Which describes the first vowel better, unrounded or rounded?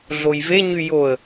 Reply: rounded